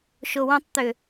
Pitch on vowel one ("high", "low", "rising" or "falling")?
low